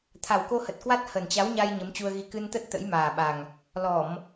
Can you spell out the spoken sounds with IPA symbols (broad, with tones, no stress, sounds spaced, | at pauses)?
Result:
t̪ʰ a˨˩ w k o˧ h ə˨˩ t̚ k w a˦˥ t̚ h ə˨˩ n t͡ɕ a˨˦ w ɲ a˧ j ɲ ə˨˦ m t͡ɕ u˧ ə̯ ɣ i˧ k ɨ˧ n t̪ ə˦˥ t̚ t̪ ə̰˧˥ j m aː˨˩ ɓ a˨˩ ŋ | l ɔ˧˩˨ m